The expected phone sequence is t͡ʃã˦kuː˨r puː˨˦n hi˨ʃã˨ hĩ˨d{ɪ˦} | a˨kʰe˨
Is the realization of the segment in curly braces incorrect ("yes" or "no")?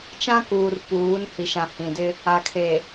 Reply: no